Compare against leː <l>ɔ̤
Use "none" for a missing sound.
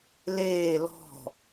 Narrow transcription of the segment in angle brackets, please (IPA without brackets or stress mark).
l